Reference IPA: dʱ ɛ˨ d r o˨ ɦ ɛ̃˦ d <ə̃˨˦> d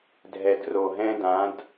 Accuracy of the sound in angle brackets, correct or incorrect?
incorrect